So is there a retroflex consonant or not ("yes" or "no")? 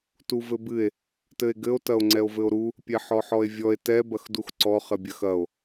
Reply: no